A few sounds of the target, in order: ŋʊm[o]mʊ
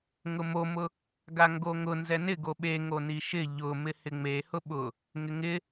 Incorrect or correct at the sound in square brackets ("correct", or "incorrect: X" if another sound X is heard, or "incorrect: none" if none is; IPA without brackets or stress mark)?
correct